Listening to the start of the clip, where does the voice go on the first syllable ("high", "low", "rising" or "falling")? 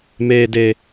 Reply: low